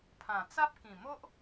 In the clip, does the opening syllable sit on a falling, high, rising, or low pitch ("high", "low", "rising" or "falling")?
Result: low